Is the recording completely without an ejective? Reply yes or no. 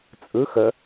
no